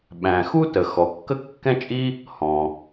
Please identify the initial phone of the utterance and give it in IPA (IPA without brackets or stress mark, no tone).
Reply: ɓ